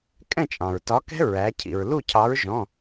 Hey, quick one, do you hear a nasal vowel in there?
yes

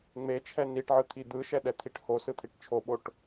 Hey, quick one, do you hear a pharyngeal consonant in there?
yes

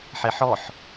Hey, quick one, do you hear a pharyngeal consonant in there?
yes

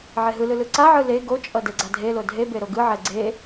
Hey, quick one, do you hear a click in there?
yes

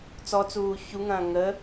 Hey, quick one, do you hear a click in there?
no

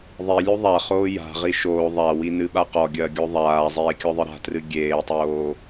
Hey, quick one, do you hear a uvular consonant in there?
yes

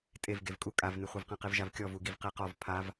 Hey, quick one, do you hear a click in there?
no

